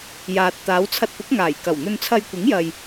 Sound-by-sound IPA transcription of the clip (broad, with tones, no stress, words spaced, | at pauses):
jaː˨t̚ t̪aː˨˧wt͡sʰɐ˧t̚pʊ˨˥k̚ ŋaː˨˩jkɐ˨˩w n̪ɵ˧nt͡sʰɐ˧jkʷɪ˨˥ŋjɐ˨j